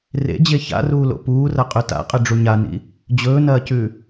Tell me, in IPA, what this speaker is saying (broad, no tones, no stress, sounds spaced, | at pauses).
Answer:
r ḛ d͡ʑ e ç a̰ r uː l o̰ p uː r ɐ qʼ ʉ t a̰ qʼ ɨ ɖ͡ʐ u ɲ a n ḭ | d͡ʑ ɵː n ɐː c ʉ